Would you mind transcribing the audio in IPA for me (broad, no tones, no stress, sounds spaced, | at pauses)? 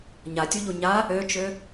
ɲ a tʲ u ʎ u ɲ a | ø t͡ʃ ø